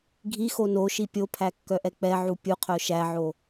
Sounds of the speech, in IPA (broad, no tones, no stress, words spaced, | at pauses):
ɡʱixo noʃi pʲopʰækːœʔɛ k͡pɛʕu pʲuqʰœ ʃæʕo